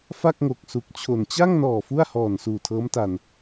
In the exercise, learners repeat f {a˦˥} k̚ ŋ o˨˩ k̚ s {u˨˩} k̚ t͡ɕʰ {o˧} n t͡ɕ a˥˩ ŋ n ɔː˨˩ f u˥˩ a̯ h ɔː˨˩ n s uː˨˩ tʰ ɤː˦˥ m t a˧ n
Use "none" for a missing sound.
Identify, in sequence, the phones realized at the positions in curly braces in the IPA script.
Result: a˥˩, u˨˩, o˨˩

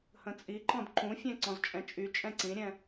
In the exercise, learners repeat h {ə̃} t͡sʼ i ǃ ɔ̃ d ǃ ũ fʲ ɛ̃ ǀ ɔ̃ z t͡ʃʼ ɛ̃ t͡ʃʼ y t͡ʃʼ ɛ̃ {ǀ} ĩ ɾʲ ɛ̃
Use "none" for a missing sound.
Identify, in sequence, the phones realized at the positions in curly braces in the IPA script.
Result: ə̃, ǀ

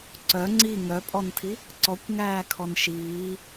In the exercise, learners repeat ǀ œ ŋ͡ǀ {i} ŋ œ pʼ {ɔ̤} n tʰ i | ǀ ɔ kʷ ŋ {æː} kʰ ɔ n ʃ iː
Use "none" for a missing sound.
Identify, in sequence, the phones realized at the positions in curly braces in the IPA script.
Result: i, ɔ, æː

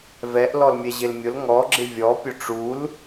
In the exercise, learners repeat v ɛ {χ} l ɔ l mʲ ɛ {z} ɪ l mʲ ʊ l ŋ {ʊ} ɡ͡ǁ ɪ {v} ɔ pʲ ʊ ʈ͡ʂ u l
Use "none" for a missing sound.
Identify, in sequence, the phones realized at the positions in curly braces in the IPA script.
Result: ʔ, ʑ, ɔ, vʲ

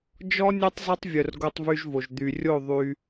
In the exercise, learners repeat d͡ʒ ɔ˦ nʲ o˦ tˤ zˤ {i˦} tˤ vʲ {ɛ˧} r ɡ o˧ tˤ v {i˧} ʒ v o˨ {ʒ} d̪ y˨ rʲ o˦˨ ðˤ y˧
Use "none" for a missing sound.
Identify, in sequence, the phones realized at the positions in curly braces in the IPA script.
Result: i˦, œ˧, y˧, ʒ

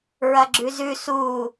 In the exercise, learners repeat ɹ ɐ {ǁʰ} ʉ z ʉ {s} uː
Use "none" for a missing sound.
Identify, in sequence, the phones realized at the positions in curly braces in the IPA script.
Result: ɡ͡ǁ, s

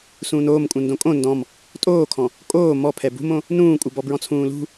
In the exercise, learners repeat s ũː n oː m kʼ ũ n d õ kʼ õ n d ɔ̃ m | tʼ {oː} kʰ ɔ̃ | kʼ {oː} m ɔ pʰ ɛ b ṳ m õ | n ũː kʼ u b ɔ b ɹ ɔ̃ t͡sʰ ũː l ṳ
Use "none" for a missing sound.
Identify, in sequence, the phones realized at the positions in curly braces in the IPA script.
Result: oː, oː

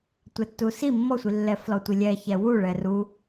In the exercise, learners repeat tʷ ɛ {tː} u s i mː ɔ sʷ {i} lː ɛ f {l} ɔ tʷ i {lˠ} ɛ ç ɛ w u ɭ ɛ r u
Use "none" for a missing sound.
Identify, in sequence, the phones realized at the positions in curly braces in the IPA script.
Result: tː, i, l, lʲ

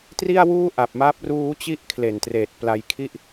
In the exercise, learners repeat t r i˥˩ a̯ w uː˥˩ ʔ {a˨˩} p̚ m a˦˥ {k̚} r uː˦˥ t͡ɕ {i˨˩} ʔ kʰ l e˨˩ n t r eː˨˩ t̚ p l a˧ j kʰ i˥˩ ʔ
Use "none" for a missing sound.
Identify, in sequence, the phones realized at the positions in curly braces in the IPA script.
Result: a˨˩, p̚, i˥˩

